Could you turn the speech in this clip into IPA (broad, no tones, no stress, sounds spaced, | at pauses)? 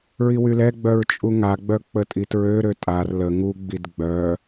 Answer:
ɹ i w y l ɛ ɡ͡b œ ɹ t͡ʃʼ u ŋ a ɡ͡b œ k͡p ə tʼ i t ɹ ø ɾ ø tʼ a r l ə ŋ u ɡ͡b i d ɡ͡b œ